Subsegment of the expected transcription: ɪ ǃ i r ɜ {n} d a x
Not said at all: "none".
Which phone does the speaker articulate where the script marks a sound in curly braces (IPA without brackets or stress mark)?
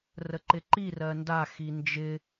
n